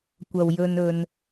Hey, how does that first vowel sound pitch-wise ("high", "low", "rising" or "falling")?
low